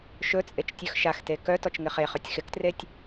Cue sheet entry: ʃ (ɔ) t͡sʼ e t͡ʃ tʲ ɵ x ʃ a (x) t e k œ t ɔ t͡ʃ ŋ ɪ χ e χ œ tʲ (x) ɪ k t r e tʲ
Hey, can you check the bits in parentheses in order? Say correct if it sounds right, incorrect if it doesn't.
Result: incorrect: ɵ, correct, correct

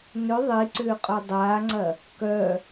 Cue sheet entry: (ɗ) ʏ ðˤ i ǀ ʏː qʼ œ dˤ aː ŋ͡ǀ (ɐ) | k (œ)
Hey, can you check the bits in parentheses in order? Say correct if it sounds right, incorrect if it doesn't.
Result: incorrect: n, correct, correct

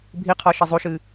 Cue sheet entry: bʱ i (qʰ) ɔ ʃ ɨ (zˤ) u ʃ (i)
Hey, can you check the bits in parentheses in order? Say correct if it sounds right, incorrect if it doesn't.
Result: correct, correct, incorrect: ɨ

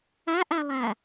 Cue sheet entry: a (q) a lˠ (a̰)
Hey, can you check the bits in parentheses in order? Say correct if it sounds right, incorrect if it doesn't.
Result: incorrect: ʔ, incorrect: a

